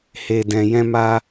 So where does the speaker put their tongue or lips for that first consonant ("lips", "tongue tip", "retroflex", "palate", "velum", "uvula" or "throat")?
throat